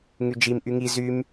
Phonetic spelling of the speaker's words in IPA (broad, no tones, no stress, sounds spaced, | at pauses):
ŋ y d͡ʒ i m ʔ y ŋ i z y m